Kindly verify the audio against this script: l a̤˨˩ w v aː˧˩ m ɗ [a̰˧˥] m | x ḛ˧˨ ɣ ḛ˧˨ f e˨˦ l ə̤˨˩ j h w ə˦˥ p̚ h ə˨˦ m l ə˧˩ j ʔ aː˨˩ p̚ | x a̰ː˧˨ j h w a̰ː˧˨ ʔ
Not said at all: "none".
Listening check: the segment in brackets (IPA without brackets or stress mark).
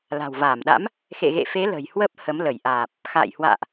a̰˧˥